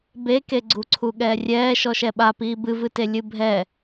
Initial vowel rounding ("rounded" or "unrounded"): unrounded